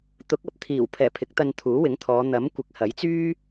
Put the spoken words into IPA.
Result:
t̪ ʊ˨˥ k̚ ɐ˨ p̚ t̪ʰ iː˨˩ w pʰ ɛː˨˩ pʰ ɪ˨˥ k̚ t̪ ɐ˧ n t̪ʰ uː˨˥ w ɪ˨˥ ŋ t̪ʰ ɔː˨˧ n̪ ɐ˨˥ m kʷ ɪ˨˥ k̚ h ɐ˨˥ j t͡s yː˥

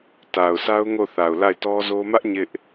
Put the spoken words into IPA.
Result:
t a˨ ʊ̯ sʰ a˦ ʊ̯ ŋ o˦˨ θ a˨ ʊ̯ l a˦˨ ɪ̯ t ɔ˦ z o˦ m ä˦ ʔ ɲ ɪ˦ ʔ

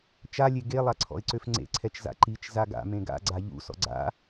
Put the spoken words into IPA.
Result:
t͡ʃ a lʲ e ɡ e lˠ a ǀʰ ɔ̰ ɪ̯ ǀ ø f ŋ͡ǀ ḛ ǀʰ ɛ t͡ʃ z a̰ ǃ i t͡ʃ z a ɡ a̰ m ẽ ɡ a̰ ɡ͡ǀ a ʎ ṵ s ɔ̰ ɡ͡ǀ a̰

